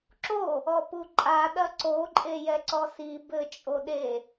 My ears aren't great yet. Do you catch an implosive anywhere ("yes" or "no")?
yes